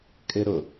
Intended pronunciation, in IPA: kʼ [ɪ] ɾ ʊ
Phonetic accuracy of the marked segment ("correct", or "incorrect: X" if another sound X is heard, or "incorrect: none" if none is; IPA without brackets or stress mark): correct